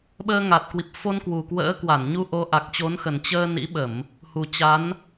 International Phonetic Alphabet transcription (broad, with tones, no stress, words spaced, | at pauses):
ɓəː˧ŋa˨˩t̚ kwi˨˩p̚fo˧nkwu˨˩kwə̰ː˧˥ kwa˧˩nɲu˧ ʔo˨˦ʔa˨˩k̚t͡ɕo˨˦nxə˨˩n t͡ɕəː˧ nḭ˧˥ɓə˧˩˨m | hu˨˩t͡ɕa˨˦n